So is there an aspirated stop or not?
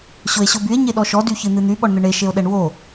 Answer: no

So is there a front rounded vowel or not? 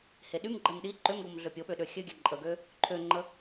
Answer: yes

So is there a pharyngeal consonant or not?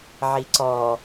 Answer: yes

